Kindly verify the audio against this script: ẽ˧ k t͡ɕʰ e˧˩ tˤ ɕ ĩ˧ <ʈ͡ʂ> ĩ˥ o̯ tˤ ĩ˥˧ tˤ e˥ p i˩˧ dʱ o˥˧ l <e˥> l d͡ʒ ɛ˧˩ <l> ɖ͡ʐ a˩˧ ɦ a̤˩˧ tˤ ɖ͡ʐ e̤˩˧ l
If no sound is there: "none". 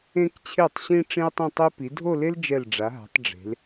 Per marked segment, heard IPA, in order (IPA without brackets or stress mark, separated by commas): ʈ͡ʂ, e˥, l